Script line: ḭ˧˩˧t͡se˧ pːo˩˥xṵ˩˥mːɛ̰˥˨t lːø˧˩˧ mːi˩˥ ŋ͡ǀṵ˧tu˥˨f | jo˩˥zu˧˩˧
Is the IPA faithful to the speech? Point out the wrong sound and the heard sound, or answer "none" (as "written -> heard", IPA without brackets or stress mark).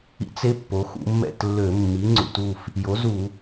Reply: none